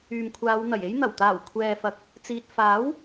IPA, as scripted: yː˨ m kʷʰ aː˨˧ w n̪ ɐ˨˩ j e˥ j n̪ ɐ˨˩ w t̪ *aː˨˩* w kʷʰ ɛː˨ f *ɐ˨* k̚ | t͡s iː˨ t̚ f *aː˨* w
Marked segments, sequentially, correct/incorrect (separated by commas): correct, correct, incorrect